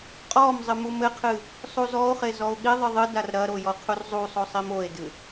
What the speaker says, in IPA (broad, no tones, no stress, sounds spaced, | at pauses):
qʼ ɔ m zˤ ɨ m u m ɘ qʰ ɨ | sˤ u z ɔ o̯ χ e z ɔ o̯ ɠ i ðˤ ɨ ðˤ ɨ d a r ɾ ɐ ɾ o j ɔ qʰ u r zˤ u sˤ o sˤ i m o e̯ d ɨ